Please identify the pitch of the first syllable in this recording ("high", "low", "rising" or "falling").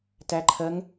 rising